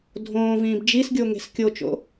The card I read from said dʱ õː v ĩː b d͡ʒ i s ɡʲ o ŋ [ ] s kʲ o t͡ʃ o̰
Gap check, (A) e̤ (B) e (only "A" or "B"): A